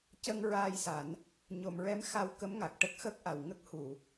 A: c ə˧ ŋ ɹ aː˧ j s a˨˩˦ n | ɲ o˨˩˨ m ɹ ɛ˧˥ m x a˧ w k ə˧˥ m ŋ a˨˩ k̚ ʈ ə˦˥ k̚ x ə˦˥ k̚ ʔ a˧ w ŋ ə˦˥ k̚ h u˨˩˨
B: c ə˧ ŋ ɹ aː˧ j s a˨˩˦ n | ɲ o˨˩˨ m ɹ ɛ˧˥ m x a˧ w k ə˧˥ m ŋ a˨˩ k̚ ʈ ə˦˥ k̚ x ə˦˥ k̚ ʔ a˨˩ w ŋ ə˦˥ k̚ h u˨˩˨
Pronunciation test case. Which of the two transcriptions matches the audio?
B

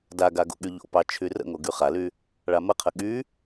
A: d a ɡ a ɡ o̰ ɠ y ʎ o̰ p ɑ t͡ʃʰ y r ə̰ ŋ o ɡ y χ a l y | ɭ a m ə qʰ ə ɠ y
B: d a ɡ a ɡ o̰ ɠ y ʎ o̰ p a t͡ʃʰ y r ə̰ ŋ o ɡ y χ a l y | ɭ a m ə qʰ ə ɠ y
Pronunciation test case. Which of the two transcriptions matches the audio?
A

